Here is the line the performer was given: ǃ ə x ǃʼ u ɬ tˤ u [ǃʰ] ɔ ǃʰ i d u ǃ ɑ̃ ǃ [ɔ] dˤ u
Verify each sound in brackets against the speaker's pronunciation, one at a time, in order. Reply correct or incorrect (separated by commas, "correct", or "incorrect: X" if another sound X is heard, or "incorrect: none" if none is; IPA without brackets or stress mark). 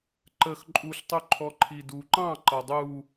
correct, incorrect: ʌ